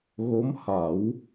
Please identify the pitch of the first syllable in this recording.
rising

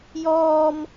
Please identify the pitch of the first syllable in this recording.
high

